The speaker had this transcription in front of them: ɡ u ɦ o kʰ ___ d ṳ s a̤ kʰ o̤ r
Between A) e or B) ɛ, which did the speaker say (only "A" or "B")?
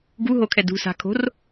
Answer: B